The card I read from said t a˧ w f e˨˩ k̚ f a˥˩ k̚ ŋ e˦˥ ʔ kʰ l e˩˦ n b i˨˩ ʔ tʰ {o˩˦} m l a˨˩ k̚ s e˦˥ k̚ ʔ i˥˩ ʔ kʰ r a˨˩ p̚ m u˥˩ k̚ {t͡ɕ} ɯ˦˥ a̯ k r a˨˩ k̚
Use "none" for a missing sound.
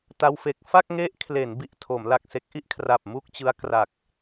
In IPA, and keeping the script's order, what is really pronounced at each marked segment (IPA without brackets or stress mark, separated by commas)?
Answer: o˩˦, t͡ɕ